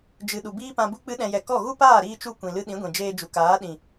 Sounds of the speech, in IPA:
d͡ʒɨ˨ ɗu˨biː˦pã˧bu˦ k͡pɨ˦ɗɛ̃˧jɛ˧ kɔ˦˨ ɣu˦paː˦˨ɾiː˧t͡ʃu˧ kʷĩ˨lɨ˧ɗĩ˨˦ɡʷĩ˨ d͡ʒeː˧d͡ʒu˨kaː˨˦ɗĩ˨

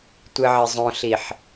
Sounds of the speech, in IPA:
tʷɨʕɪzˤõɬiħ

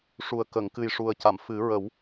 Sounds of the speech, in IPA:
ʂu˨˩ə̯ kə˨˩˨ŋkɨ˨˩j ʂu˨˩ə̯ca˨˩˨mfɨ˨˩˦ ɹə˨˩˦w

